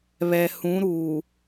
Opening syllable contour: low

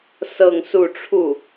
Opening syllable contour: falling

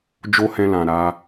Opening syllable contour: high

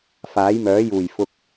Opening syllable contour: rising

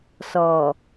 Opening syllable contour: low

